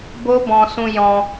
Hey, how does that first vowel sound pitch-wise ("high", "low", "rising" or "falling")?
high